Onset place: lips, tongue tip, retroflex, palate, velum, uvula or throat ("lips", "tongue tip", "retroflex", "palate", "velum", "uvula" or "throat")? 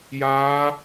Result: palate